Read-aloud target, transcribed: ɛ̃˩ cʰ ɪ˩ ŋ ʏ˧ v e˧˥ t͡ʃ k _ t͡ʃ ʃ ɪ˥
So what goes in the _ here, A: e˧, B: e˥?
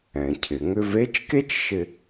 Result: B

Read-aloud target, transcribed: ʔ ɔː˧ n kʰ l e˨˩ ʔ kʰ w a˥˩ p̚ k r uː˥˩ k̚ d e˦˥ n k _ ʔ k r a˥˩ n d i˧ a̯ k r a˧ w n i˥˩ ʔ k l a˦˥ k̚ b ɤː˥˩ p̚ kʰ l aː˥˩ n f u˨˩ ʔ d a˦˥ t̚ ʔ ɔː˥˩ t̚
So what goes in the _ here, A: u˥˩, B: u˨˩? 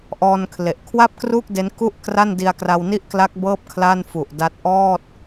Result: A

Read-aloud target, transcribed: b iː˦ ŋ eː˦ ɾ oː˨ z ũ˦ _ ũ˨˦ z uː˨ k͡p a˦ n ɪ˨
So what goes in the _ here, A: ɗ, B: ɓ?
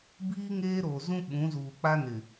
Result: B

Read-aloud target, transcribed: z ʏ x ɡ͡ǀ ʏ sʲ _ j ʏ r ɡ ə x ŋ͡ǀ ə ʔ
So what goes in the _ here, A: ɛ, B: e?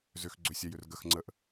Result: A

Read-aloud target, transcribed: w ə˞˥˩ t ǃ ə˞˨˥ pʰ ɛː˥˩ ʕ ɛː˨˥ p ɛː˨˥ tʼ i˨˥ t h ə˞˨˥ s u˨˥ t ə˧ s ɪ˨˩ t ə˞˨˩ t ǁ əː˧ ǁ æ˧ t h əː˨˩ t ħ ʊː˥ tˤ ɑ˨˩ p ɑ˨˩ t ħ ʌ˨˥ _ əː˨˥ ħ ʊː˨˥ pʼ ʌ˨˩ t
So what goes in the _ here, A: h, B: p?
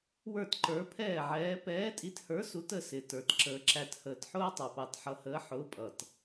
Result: A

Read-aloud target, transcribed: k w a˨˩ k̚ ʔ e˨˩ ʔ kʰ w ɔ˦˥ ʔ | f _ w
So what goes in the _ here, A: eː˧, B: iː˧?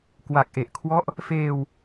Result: A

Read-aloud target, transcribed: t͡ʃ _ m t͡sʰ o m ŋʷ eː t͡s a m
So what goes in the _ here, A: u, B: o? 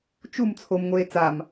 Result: A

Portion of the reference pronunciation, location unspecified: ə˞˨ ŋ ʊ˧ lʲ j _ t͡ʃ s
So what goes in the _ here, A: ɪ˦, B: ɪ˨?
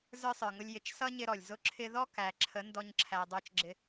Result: B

